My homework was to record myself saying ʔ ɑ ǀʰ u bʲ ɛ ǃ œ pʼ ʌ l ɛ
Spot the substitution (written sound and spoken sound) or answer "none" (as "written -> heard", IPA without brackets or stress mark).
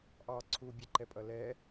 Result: œ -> ɛ